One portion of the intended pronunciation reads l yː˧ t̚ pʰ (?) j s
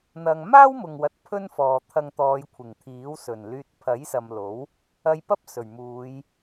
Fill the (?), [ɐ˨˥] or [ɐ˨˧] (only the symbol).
ɐ˨˥